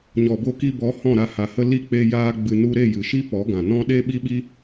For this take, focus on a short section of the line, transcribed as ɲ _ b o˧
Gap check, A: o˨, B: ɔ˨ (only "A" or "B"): B